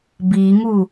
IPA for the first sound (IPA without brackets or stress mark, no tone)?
b